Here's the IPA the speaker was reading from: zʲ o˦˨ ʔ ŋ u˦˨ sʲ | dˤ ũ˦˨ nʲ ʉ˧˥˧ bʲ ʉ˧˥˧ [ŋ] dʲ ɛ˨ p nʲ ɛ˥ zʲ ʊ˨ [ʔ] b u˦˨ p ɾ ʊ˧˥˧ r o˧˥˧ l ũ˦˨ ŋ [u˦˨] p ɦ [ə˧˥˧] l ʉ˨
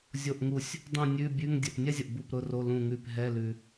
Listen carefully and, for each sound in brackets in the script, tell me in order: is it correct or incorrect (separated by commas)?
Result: correct, correct, incorrect, incorrect